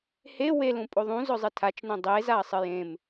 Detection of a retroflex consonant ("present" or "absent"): absent